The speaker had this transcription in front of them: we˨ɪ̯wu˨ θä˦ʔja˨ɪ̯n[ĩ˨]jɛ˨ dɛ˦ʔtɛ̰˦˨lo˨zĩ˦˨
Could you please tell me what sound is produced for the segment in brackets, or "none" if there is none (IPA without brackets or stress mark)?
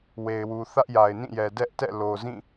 ĩ˦˨